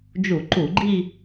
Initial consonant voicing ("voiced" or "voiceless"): voiced